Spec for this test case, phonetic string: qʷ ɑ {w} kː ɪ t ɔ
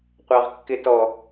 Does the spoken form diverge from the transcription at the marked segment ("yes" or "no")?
yes